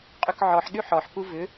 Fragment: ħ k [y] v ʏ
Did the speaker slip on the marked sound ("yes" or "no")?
yes